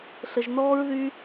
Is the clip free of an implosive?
yes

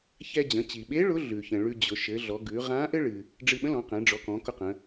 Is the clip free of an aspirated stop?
yes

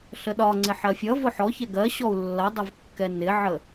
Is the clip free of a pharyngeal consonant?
no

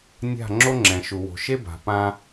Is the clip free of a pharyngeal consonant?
yes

